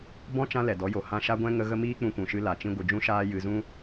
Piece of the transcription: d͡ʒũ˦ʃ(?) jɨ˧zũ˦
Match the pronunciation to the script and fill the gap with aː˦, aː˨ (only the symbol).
aː˦